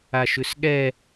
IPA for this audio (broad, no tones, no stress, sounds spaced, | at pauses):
a ʃ ʉ s ɠ ɛ